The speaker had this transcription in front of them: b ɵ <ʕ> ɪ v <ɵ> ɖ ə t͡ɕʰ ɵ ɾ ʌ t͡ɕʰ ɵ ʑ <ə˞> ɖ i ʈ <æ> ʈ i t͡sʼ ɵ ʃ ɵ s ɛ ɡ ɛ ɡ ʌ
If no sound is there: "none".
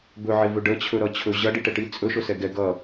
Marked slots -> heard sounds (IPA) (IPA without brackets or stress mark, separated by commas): ʕ, ɵ, ʌ, ɛ